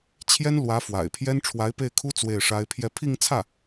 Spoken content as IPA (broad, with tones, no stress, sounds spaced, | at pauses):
t͡ɕʰ j ɛ˥ n l w ä˧˥ f w a̰˨˩ ɪ̯ pʰ j ɛ˥ n ʈ͡ʂʰ w a˧˥ ɪ̯ p e˥˩ ɪ̯ kʰ u˥ t͡s w e˥˩ ɪ̯ ʂ a˥ ɪ̯ pʰ j ɛ˥˧ pʰ i˥˧ ŋ t͡sʰ ä˥˩